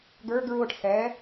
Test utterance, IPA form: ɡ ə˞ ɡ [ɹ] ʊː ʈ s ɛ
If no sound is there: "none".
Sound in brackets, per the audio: ɹ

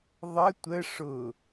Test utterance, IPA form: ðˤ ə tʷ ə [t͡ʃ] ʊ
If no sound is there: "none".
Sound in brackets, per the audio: ʂ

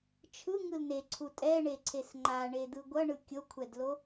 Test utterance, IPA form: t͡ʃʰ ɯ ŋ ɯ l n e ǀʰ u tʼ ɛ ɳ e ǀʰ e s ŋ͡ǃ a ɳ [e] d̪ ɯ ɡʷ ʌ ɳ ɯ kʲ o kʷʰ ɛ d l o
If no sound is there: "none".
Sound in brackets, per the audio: e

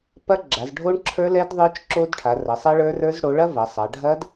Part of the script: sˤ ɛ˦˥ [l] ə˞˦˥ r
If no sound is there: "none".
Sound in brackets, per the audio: ɭ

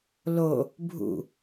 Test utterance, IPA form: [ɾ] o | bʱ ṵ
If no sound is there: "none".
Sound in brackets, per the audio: l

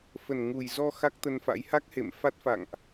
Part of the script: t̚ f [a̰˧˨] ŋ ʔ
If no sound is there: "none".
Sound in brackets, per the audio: a̰˧˨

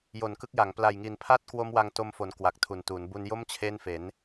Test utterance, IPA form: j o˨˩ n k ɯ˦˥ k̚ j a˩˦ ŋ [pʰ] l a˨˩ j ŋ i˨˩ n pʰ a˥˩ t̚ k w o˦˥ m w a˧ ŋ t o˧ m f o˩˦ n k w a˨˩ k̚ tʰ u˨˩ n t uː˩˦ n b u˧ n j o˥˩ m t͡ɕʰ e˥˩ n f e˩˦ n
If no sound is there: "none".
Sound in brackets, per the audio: p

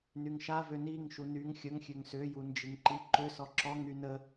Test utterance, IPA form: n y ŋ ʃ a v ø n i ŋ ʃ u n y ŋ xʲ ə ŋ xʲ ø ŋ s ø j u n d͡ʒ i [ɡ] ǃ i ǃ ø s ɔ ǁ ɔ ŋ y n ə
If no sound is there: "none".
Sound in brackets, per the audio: ŋ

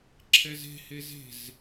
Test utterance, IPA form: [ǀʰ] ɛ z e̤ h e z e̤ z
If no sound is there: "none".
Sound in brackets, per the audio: ǁʰ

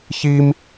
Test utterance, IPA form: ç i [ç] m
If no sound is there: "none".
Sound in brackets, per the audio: none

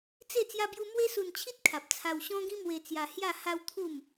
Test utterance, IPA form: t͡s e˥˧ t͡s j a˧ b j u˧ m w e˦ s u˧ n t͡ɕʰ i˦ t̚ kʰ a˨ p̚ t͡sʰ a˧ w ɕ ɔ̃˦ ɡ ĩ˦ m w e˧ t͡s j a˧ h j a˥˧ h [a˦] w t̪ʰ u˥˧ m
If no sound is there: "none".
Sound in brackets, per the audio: a˦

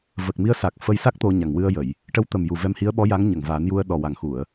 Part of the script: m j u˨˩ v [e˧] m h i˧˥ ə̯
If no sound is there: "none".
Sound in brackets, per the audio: ɛ˧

